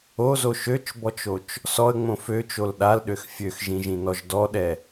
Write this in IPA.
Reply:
o z o ʃ ø t͡ʃ b ɔ t͡ʃ o t͡ʃ | s ɔ ə̯ ŋ͡m õ f ø t͡ʃ o l ɗ a l ɗ ø x fʲ ø x ʒ ĩ ʒ ĩ n ɔ ʒ d ɔ ɗ ɛ

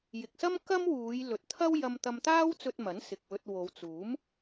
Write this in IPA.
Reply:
j ɪ˨ k̚ s ɐ˥ m k ɐ˥ m w uː˨˧ j l ɵ˨ t̚ t̪ʰ ɐ˥ w j ɐ˧ m t̪ ɐ˧ m t̪ aː˥ w t͡s ɵ˧ t̚ m ɐ˨˥ n s ɪ˨ k̚ w ɵ˧ t̚ w o˨˧ w t͡s uː˨˥ m

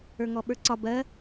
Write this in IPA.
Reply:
ə˞ ŋ ɔ ɓ ə˞ ǀ ɒ b ɜ

